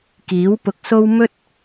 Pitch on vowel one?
rising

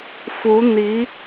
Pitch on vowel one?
rising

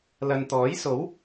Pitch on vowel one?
low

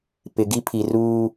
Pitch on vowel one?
low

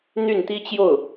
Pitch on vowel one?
falling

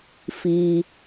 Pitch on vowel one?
low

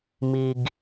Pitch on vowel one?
low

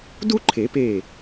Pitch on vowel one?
high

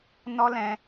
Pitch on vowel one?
high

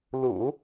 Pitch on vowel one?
low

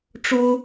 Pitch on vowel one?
high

